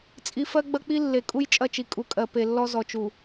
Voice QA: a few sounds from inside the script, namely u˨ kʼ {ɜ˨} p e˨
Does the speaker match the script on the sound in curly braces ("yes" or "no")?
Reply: yes